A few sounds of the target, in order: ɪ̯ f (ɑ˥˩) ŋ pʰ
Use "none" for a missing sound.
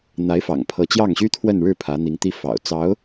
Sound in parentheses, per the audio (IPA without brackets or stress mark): ɑ̰˨˩